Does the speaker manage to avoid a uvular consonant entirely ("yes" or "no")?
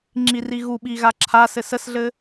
yes